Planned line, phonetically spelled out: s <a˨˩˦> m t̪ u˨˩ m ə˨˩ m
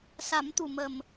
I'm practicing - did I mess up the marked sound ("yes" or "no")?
no